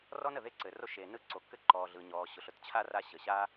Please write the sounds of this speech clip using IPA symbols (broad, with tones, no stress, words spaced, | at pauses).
rɔ˥nə˩ ðe˥ǀɘ˩ro˥ ʃeː˩nɯ˥ǀo˩kːɘ˥ ǃɔː˩ ɮɯ˩ɲɔː˩ɕʊ˩ɬ ʊ˥tt͡ɕʰa˥ ra˥ɕə˩ ɕa˥